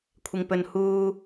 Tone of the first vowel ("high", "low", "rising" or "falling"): low